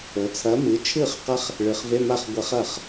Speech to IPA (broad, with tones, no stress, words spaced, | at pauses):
ɵ˩˧t͡sʰɐ˨˥ mɨ˩˧ t͡ʃʰɨ˥˩χqɐ˦˥χ | ɭɨ˩˧χve˧˥˧ma˥˩χ ɡʷɐ˧˩˧χ ɐ˥˩χ